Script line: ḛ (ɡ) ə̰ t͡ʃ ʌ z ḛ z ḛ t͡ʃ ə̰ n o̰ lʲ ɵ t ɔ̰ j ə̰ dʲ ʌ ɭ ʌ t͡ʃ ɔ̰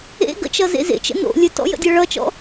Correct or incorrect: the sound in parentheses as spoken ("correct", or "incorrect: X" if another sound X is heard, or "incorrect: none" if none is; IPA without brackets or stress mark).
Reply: correct